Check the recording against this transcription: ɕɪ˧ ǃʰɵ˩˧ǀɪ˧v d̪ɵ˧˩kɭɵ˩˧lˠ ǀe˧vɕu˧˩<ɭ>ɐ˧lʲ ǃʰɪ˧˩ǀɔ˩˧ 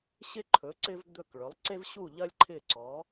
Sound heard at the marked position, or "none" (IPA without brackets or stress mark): ʎ